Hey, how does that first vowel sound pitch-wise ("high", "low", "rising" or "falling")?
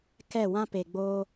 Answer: falling